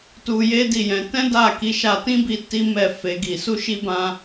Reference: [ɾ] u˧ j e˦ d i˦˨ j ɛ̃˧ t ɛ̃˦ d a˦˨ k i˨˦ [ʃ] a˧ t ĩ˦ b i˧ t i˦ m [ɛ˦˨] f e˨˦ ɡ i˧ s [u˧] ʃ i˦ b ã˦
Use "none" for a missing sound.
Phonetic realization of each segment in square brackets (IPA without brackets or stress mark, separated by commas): t, ʃ, ɛ˦˨, u˦